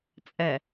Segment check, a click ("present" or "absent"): absent